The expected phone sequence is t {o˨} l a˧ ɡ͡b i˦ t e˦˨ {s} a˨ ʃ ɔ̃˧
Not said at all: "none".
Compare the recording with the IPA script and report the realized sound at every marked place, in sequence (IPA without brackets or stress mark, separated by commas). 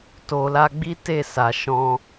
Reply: o˨, s